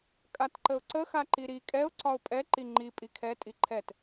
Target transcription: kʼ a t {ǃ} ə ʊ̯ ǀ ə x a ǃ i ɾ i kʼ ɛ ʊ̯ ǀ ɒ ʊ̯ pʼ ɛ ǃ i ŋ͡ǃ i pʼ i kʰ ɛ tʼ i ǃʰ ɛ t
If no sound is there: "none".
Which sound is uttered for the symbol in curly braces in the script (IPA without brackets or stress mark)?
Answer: ǃ